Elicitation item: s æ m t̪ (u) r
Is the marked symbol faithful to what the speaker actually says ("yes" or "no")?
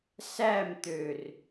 no